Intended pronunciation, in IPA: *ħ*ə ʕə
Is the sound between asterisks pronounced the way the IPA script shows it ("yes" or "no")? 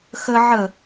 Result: no